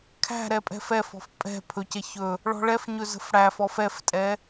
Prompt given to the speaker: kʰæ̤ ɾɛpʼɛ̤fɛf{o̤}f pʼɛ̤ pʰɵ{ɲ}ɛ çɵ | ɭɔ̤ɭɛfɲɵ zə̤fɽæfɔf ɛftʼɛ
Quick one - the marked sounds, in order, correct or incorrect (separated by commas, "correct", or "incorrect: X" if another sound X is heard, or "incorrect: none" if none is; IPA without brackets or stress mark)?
incorrect: ɔ̤, incorrect: c